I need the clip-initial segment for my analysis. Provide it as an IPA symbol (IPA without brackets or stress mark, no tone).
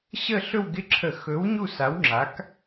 ɕ